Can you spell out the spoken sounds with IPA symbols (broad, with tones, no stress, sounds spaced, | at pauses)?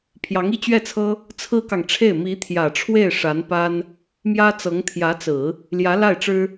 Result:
pʰ j ɑ˧˥ ŋ i˥˧ t͡ɕ ɥ ɛ˥˩ t͡sʰ ɤ˥ | t͡sʰ ɹ̩˥ k ɑ˨ ŋ ʈ͡ʂʰ e˥˩ ɪ̯ m i˧˥ t̪ʰ j ä˨˩ ʈ͡ʂʰ w e˥˩ ɪ̯ ʂ a˧˥ n p a˥ n | m j ä˥ t͡s ɤ˧˥ ŋ t̪ʰ j ä˧˥ t͡s ɹ̩˨˩˦ | l j ä˧˥ l a˥˩ ɪ̯ ʈ͡ʂ ɻ̩˥